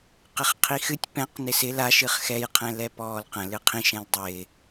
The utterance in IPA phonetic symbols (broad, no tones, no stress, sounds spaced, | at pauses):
q ɪ χ qʰ i x ɨ tʲ p ɛ̃ q n ɪ s ɪ l a ʃ ɨ χ x ɛ j qʰ ɛ̃ l ɛ p ɔː l q ə̃ l ɨ qʰ ĩ ʃ ɛ̃ l dˤ ɪ